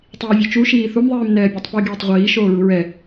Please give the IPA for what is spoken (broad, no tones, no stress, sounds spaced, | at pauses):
tˤ iː vʲ o t͡ʃ u ʃ iː θ u m ðˤ iː m n ɛː bʲ ɜ tˤ p i ɡ iː tˤ ʁʷ iː ʃ oː ɹ u ɹ ɛ